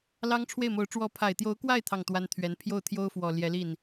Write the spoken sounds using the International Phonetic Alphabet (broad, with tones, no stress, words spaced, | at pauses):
lɑ˥ŋʈ͡ʂʰwe˥˩ɪ̯mo˧˥ʊ̯ ʈ͡ʂwɔ˧˥pʰa˨˩ɪ̯t̪jo˧˥ʊ̯kwa˥˧ɪ̯ t̪ʰɑ˥˩ŋt̪wa˥nt̪ʰɥɛ˧˥n pʰjo˥˩ʊ̯t̪ʰjo˥ʊ̯fwɔ˨˩ ljɛ˧˥li˥˩n